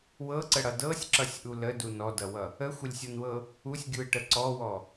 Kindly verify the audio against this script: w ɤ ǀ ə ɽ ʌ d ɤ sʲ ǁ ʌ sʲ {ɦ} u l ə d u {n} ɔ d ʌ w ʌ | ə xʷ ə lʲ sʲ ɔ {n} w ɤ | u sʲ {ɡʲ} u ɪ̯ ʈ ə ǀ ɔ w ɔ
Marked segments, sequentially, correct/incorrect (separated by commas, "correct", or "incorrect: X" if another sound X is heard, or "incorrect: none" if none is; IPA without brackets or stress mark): incorrect: ʔ, correct, correct, correct